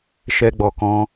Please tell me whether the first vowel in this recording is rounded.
no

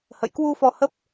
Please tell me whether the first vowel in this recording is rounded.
no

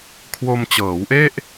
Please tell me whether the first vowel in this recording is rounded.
yes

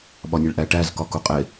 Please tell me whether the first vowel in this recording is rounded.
yes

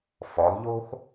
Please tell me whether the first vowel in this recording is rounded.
yes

